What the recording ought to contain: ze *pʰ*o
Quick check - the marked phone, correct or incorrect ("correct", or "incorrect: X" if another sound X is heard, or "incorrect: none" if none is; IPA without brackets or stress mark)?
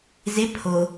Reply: correct